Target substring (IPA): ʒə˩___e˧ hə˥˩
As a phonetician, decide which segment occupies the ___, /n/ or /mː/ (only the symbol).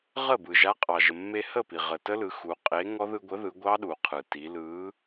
mː